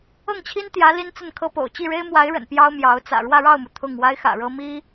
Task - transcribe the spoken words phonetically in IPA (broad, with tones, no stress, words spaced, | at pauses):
ɤ˥˩ŋt͡ɕʰi˥nt̪jä˧˥ li˥nt͡sə˥˩nkʰɤ˥po̰˨˩ʊ̯ t͡ɕi˥˩ɻe˥ɪ̯mwa˧˥ɪ̯ɻə̰˨˩n pjɑ˥ʊ̯mjɑ˧˥ʊ̯ t͡sä̰˨˩ɻwä˥˧ɻɑ˥˩ʊ̯mu˩ t̪ʰʊ˥˩ŋ wa˥ɪ̯xä̰˨˩ɻɤ˥ mi˥